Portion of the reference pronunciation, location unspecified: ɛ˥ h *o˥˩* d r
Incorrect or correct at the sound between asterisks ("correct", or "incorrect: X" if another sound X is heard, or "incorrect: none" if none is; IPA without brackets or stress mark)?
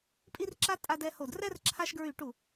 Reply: correct